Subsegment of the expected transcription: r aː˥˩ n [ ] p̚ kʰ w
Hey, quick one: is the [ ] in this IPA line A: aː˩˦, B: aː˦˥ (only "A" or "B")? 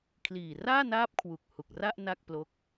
B